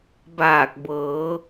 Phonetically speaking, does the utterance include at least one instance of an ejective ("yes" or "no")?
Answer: no